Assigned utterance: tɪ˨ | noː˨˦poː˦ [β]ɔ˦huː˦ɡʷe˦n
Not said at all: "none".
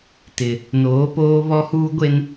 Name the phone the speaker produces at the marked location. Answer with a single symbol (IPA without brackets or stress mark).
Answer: β